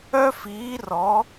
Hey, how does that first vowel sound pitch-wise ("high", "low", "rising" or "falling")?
high